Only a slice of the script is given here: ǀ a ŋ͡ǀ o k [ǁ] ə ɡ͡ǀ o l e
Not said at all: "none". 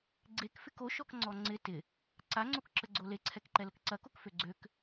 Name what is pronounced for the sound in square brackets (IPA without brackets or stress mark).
ǁ